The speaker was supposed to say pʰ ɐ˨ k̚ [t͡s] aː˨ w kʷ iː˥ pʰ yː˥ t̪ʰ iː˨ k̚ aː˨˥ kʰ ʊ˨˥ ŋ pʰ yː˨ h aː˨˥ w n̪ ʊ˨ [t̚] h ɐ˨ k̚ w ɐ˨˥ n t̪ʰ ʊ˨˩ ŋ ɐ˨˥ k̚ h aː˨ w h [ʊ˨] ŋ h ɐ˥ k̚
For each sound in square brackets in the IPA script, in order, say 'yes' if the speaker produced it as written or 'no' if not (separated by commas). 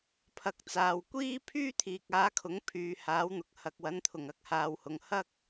yes, no, yes